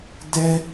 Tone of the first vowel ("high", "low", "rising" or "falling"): high